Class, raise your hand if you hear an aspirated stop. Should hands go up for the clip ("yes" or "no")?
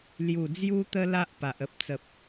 no